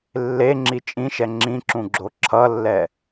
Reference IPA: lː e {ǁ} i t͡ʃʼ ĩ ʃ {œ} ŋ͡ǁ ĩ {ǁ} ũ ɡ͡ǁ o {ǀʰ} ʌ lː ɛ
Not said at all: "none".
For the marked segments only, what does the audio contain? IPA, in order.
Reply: ŋ͡ǁ, ɛ, ǁ, ǁʰ

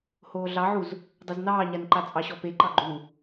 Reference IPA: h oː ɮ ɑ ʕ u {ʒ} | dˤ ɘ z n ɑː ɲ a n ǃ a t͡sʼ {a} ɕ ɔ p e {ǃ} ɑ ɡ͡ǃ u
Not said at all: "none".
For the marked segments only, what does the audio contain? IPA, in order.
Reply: z, ɑ, ǃ

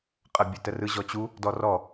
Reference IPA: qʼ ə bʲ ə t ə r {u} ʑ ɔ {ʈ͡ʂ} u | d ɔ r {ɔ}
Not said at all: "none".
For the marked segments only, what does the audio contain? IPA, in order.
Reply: ɯ, t͡ɕ, ɔ

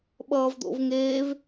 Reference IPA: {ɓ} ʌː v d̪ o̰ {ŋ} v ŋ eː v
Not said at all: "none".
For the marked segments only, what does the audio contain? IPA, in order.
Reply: ɓ, none

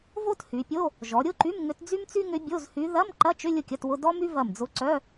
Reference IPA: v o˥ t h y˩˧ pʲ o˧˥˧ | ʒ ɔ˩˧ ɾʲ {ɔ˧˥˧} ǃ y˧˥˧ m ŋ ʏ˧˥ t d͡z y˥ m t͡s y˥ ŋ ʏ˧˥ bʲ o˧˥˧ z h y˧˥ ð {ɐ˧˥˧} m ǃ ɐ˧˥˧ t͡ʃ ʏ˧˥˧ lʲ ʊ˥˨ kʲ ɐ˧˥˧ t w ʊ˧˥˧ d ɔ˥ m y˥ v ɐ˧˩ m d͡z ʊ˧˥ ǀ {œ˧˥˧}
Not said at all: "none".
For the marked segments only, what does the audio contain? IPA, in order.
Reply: ʊ˧˥˧, ɐ˧˥˧, œ˧˥˧

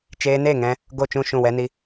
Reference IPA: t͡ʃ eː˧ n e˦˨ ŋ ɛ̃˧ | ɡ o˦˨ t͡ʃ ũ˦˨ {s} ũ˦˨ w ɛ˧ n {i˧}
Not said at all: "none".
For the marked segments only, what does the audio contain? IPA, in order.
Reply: ʃ, i˧

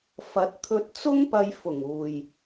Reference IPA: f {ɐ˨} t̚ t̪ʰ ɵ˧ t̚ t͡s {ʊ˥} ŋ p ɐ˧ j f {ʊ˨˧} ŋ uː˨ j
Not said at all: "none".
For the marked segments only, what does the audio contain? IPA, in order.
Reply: ɐ˨˥, ʊ˥, ʊ˨˩

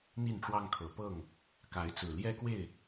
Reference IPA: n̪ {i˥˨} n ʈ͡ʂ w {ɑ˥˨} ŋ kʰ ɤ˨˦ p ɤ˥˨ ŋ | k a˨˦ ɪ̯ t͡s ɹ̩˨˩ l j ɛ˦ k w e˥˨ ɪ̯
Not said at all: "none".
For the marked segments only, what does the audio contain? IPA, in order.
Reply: i˥˨, ɑ˦

